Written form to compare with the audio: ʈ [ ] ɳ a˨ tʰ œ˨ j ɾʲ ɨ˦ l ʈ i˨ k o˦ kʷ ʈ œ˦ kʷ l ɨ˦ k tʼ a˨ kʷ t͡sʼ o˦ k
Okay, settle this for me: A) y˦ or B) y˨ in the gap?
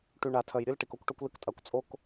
B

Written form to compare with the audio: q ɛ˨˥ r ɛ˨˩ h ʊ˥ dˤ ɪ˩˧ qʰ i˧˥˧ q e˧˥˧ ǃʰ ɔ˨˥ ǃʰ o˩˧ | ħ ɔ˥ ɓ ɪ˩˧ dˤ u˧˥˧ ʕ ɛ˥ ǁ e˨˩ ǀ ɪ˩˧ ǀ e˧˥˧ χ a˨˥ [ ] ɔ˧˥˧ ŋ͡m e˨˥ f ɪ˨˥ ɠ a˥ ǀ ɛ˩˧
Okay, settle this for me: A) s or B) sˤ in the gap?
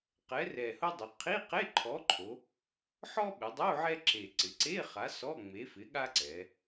A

